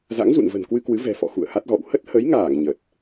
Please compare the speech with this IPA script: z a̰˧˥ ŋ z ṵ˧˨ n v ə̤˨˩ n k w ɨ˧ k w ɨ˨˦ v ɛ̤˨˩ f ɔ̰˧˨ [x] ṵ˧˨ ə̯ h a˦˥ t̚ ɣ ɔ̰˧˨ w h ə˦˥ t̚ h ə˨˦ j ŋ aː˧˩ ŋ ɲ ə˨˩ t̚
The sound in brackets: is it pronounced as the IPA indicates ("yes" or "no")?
yes